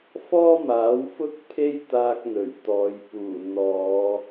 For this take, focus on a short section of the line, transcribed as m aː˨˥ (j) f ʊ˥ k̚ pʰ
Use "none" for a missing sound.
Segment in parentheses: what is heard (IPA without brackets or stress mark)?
w